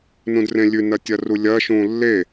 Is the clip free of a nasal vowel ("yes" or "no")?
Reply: no